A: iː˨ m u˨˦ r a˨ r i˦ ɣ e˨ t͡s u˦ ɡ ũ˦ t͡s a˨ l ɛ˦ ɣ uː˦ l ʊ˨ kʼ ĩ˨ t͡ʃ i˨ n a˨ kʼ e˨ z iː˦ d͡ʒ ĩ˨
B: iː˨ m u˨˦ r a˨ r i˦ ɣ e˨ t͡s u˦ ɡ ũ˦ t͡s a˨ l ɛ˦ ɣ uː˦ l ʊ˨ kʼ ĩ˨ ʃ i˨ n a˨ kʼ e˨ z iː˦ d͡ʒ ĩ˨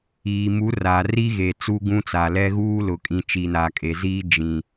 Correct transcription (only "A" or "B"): A